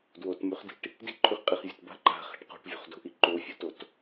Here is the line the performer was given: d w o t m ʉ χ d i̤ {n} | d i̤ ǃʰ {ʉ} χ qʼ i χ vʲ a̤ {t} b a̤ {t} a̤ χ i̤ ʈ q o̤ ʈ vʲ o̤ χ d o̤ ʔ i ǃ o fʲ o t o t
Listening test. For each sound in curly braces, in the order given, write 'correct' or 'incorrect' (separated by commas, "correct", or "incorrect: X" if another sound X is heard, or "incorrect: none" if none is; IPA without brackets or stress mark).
incorrect: ʈ, correct, correct, incorrect: ǃ